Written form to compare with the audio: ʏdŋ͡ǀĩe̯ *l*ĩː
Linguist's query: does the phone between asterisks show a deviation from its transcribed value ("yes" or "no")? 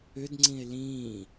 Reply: no